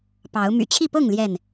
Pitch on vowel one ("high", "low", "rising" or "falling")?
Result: rising